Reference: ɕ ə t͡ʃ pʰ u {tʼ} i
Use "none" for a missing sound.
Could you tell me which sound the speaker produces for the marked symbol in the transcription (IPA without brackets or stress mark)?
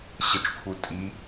tʼ